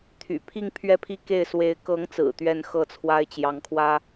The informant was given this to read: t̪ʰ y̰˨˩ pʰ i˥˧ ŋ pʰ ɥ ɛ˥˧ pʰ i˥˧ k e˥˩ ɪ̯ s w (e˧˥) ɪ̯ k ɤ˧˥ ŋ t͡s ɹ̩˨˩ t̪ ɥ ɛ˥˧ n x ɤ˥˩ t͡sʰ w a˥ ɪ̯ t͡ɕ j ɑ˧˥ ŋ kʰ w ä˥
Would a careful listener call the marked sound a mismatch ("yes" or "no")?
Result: no